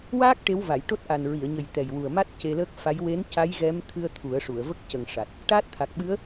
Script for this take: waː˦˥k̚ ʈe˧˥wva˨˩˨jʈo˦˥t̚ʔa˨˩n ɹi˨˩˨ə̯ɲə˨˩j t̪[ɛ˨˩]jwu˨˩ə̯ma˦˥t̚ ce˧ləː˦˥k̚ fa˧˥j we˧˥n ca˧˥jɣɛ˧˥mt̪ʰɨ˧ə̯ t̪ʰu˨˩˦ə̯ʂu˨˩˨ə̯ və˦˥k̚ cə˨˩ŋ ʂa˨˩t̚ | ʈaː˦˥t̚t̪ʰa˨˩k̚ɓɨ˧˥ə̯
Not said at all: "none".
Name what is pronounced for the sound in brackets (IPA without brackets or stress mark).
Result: ɛ˨˩